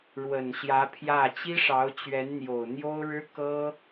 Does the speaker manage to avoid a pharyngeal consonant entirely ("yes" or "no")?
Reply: yes